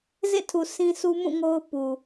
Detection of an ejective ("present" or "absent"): absent